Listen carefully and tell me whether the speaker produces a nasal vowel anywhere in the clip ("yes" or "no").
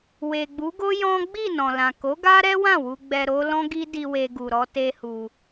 yes